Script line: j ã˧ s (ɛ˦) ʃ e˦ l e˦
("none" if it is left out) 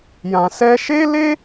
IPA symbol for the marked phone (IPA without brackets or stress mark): ɛ˦